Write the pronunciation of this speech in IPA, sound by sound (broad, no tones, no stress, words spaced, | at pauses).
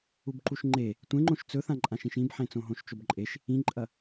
ubǃuʃŋ͡ǃe | tʷẽŋ͡ǃõʃ t͡sɵθãǃʼãʃĩʃ ĩbħẽ t͡sõɦõʃt͡ʃobǃʼeʃ | ĩǃʼɐ